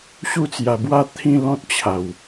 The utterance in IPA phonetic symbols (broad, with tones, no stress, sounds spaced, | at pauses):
ɕ u˦ t͡s j a˧ b w a˥˧ t̪ʰ ĩ˥˧ l ɔ̃˦ t̚ t͡ɕʰ a˨˩ w